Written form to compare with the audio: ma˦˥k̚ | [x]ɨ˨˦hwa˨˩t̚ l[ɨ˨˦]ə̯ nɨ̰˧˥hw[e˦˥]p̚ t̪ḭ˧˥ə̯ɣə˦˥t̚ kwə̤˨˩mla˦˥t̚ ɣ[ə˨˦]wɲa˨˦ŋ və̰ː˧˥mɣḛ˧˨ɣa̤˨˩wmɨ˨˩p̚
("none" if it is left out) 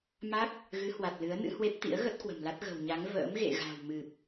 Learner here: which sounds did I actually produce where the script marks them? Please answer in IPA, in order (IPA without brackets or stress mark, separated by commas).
ɣ, ɨ˨˦, e˦˥, ə̤˨˩